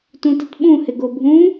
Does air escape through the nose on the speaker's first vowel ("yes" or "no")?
yes